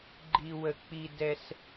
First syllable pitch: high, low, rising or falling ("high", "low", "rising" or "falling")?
high